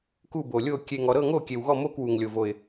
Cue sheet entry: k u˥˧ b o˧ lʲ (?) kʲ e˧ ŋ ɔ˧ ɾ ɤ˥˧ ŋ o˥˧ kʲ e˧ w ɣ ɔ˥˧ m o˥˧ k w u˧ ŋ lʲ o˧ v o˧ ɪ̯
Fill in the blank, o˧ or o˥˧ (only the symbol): o˥˧